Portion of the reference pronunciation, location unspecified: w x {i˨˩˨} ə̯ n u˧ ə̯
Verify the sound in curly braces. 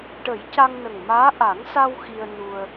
incorrect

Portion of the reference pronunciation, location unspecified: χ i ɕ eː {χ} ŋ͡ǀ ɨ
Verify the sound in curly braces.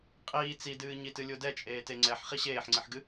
incorrect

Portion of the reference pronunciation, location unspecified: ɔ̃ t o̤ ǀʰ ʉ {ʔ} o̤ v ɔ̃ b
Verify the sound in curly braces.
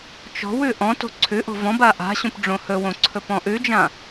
correct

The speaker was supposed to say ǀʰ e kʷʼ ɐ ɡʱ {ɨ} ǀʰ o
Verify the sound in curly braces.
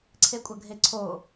incorrect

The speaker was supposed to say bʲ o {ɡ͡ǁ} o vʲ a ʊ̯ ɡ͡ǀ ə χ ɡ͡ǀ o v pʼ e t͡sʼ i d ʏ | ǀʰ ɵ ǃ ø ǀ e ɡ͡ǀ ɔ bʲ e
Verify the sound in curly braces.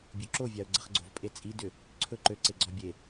incorrect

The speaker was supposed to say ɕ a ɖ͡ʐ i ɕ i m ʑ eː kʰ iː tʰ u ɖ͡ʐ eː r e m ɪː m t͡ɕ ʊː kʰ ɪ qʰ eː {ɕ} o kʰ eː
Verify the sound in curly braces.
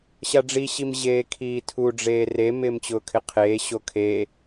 correct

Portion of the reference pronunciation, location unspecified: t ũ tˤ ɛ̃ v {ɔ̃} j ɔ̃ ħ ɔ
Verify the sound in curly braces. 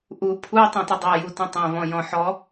correct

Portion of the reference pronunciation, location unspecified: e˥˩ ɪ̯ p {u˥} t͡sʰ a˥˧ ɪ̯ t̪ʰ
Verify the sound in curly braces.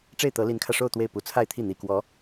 incorrect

